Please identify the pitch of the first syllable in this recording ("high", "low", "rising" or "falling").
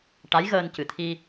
rising